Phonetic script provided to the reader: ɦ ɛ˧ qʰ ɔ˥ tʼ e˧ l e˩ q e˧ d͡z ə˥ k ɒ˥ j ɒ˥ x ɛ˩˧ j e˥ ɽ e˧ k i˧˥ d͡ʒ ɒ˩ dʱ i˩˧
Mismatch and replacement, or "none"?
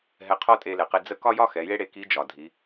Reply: none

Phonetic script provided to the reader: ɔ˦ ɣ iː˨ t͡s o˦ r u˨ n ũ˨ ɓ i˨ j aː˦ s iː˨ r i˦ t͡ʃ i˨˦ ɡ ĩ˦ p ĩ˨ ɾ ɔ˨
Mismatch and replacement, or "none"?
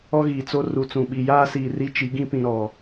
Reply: n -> t͡s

